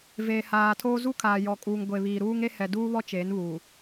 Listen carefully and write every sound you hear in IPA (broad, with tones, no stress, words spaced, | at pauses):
veː˨haː˨tʰoː˦ zu˦kʰaː˨jɔ˨kʼuː˨ŋ ɡʷe˨βiː˨ɾuː˦ŋe˦ hɛ˨duː˦βɔ˦ t͡ʃeː˨˦nβuː˨